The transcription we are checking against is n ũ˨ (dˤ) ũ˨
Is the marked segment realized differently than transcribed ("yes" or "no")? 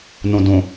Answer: yes